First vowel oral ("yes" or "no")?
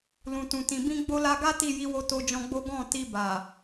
no